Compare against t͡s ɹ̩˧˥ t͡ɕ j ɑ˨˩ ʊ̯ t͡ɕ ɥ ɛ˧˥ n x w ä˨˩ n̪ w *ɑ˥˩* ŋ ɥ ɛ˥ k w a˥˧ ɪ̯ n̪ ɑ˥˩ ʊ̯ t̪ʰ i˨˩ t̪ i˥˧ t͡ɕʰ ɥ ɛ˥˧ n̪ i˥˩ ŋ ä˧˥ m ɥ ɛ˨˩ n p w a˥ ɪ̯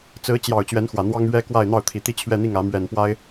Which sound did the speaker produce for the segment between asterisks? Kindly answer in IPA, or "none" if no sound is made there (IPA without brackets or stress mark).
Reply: ɑ˥